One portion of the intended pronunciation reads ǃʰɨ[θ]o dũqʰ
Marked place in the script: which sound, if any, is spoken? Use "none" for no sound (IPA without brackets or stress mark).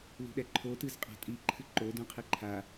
ǃ